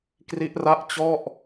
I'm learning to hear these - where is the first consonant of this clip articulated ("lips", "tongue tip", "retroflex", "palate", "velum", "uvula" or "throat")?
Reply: velum